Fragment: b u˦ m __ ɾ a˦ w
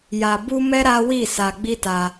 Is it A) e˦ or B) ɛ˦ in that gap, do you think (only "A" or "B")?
B